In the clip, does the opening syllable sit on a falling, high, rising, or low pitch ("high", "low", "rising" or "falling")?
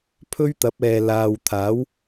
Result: high